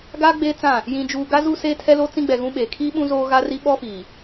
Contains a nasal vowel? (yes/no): yes